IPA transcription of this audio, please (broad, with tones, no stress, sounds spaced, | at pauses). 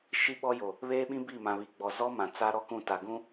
ʃ i˦ ɓ ɔ˦ j o˨ | β eː˦ ɓ ĩ˦ b i˦˨ m ã˨ β i˨ ɡ͡b ɔ˨ z ɔ˦ m ã˨ t͡s a˦ ɾ ɔ˦ k ũ˦˨ t a˨ ɡ ũ˦